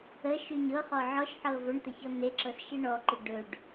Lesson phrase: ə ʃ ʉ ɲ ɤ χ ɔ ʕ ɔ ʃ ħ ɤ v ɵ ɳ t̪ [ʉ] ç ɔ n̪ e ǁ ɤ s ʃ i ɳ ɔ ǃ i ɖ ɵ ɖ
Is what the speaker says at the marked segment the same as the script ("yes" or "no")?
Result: no